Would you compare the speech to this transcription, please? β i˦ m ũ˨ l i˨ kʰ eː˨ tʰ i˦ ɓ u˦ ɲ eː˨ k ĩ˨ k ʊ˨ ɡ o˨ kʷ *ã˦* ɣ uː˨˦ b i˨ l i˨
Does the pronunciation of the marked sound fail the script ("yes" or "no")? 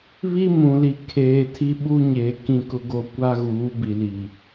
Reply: yes